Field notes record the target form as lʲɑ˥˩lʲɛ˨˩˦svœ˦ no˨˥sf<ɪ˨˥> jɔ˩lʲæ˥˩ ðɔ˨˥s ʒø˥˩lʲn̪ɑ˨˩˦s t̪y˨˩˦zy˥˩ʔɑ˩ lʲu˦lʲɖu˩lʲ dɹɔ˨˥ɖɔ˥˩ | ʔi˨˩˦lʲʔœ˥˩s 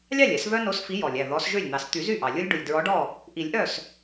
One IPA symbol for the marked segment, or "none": i˨˥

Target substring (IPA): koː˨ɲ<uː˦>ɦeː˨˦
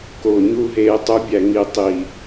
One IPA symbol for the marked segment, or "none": uː˦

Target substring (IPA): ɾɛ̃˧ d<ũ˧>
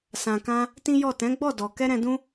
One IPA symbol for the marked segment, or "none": ũ˦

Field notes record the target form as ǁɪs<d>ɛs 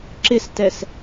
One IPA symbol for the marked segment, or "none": t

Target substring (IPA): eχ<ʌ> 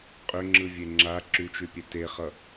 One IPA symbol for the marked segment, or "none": ʌ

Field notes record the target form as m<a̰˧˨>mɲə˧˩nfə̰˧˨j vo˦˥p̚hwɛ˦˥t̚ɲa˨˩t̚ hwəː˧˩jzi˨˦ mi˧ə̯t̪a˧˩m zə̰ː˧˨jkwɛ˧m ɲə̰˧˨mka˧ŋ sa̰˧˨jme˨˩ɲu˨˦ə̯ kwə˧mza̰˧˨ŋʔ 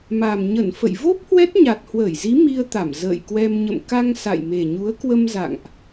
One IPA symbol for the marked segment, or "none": a˨˩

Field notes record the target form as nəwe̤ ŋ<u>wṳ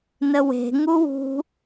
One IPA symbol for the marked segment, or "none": u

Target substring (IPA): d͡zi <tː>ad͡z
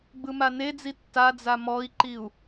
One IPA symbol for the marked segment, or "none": tː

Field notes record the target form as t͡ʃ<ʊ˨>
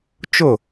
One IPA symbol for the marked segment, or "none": ʊ˦˨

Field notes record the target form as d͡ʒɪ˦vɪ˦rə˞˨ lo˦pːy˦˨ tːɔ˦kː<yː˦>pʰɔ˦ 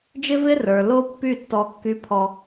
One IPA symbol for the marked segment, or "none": y˦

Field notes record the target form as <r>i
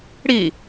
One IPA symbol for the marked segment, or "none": ɽ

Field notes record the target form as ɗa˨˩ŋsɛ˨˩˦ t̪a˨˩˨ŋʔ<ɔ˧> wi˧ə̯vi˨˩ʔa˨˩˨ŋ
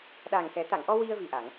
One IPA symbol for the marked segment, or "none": ɔ˧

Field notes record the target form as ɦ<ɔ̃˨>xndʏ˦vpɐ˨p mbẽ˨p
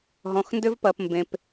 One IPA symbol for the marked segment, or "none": ɔ̃˨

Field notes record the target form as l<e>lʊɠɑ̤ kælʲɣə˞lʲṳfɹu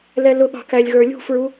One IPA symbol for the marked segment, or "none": ɛ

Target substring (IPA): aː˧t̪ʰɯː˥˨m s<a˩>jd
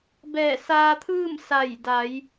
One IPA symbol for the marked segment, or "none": a˧˩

